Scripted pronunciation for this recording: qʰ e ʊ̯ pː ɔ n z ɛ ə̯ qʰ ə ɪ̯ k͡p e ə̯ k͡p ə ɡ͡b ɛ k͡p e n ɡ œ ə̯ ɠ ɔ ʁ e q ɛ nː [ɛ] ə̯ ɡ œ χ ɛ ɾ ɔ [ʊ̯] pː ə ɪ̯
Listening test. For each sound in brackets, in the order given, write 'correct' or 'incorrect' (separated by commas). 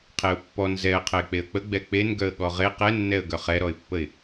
correct, incorrect